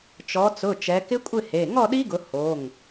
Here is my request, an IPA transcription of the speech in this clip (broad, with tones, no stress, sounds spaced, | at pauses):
t͡ʃ ɔ˩˧ t͡s ʊ˩˧˩ t͡ʃ ɛ˩˧ k ɪ˦˥ kʷʼ ɪ˥˨ h e˩˧˩ ŋ ɔ˥˨ ɗ i˦˥ ɡ ʊ˩˧ h o˩˧˩ ŋ